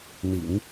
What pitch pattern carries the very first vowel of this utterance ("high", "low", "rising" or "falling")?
low